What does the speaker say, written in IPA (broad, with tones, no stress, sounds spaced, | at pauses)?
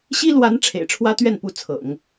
ɕ i˥ l w a˧˥ n ʈ͡ʂʰ ḛ˨˩ ɪ̯ ʈ͡ʂʰ w ä˥ t̪ ɥ ɛ˥˩ n p u˧˥ t͡sʰ ɤ̰˨˩˦ ŋ